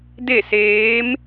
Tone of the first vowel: falling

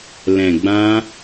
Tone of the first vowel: low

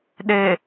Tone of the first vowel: low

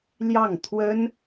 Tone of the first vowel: falling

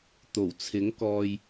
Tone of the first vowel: low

